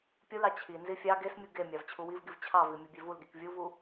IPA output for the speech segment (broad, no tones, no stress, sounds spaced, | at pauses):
pʲ u l ɑ t͡ɕʰ i n z i fʲ ɑ ɡ e s mʲ u ɡ e mʲ ɑ v t͡ɕʰ u w i v ɡ i v t͡ɕʰ ɑ v i mʲ u bʲ e v u l ɡ i k vʲ u v u